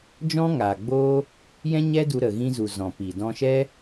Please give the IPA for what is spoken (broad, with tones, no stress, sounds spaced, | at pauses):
d͡ʒ ɔ̃˦ ŋ aː˨ ɡ͡b oː˦ | j ɛ̃˦ ɲ ɛ˦ d u˧ ɾ ə˨ ɣ ĩ˧ z u˨ z ɔ̃˨ p i˨ d ɔ̃˧ ʃ ɛ˦